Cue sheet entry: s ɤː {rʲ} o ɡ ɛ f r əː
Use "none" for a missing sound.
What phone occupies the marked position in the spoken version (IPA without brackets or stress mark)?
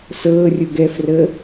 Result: rʲ